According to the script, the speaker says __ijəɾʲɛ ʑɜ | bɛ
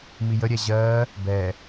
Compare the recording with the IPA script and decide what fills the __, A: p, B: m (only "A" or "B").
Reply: B